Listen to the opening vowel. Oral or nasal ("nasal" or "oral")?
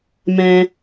nasal